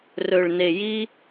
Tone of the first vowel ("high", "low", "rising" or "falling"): low